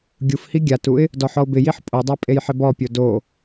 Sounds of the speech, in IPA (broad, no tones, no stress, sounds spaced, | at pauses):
ɡʲ u f h i ɡʲ a t u ɪ̯ | d ɔ ħ ɔ ʊ̯ b ɪ j i ħ pʼ o dˤ a pʼ e j ħ ɪ b ɔ pʲ o d o